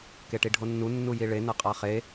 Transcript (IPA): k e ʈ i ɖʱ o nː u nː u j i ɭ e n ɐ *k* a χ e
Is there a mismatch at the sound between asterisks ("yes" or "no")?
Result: yes